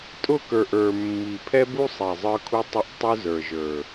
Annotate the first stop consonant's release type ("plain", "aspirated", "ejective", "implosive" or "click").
ejective